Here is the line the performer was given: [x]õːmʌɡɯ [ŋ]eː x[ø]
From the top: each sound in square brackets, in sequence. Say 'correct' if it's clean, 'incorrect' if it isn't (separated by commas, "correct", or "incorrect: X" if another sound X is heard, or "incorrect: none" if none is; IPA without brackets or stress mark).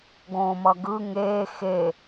incorrect: ɡ, correct, incorrect: e